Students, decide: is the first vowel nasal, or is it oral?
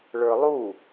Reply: oral